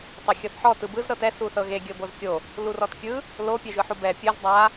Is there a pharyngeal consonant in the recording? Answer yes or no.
yes